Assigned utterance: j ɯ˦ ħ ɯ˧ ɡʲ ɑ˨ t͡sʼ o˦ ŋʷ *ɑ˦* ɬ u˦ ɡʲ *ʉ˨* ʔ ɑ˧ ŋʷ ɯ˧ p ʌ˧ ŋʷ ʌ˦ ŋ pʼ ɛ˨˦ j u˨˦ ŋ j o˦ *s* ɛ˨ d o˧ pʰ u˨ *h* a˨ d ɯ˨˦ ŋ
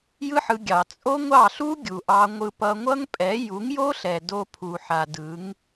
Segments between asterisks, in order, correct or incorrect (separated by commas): incorrect, incorrect, incorrect, incorrect